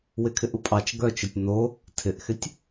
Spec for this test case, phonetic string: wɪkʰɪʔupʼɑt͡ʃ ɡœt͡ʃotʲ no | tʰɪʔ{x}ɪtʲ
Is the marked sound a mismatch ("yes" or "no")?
no